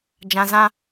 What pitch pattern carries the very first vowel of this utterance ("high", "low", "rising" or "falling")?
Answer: low